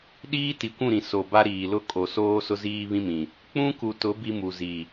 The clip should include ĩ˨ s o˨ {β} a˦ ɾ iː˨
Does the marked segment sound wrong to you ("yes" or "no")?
yes